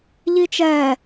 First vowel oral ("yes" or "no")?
yes